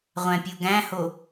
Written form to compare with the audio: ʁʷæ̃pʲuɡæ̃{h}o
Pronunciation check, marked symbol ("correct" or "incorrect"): correct